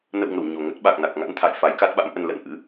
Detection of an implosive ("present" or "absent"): present